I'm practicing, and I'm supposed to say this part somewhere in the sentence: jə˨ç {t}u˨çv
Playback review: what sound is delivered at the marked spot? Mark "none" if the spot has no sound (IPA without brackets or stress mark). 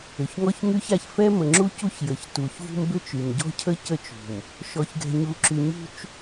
t